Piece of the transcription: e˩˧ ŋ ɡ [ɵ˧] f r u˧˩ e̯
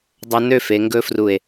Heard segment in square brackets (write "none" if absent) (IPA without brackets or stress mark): ɵ˥